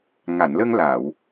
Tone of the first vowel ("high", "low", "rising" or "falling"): low